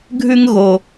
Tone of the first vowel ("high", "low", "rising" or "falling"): high